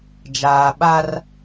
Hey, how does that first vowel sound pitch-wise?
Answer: low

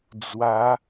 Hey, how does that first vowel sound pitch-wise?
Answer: rising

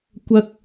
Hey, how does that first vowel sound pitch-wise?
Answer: high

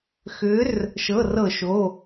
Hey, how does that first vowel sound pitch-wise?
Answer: rising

